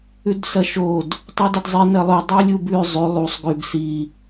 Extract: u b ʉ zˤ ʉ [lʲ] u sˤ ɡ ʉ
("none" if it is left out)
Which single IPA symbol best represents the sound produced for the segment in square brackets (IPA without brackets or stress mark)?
lˠ